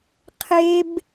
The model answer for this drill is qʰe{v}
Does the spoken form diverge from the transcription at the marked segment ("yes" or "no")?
yes